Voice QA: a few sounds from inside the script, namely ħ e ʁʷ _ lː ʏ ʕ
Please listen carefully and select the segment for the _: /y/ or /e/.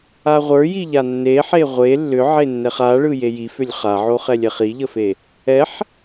e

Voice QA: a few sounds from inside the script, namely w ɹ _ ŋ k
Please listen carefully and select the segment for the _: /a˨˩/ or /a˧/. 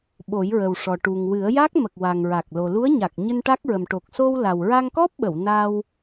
a˧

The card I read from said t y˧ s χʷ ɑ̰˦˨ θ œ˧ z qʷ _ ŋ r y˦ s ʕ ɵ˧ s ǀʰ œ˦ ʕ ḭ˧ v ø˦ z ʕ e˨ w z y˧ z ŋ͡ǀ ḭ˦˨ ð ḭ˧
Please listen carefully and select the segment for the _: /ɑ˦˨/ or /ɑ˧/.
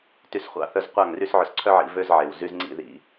ɑ˦˨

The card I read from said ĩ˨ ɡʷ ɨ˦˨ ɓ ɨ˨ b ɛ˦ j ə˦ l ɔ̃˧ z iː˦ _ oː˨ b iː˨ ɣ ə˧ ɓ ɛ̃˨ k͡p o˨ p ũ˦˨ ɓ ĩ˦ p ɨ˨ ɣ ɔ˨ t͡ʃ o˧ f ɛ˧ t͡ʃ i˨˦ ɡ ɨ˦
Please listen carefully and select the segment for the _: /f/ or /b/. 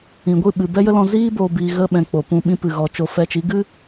b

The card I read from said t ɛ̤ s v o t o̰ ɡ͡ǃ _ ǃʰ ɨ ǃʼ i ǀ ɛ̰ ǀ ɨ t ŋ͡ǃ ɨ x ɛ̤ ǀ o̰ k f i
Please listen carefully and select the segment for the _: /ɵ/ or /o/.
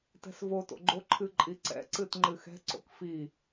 o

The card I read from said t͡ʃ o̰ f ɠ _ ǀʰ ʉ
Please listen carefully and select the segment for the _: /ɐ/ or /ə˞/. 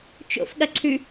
ɐ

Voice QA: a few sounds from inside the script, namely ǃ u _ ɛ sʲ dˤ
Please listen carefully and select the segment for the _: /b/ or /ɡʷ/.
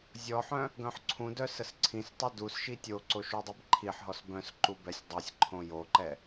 b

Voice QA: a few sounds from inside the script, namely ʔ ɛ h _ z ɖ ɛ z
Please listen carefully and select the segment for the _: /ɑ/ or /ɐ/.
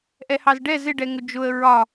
ɑ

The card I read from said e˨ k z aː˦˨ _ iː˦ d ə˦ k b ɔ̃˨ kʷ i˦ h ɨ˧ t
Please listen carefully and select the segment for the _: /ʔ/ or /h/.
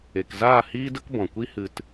h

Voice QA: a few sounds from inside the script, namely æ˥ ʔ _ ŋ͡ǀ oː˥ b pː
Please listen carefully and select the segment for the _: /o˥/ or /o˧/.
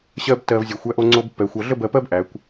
o˥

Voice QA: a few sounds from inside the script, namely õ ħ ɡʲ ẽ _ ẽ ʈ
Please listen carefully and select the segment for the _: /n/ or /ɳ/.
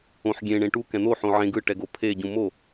ɳ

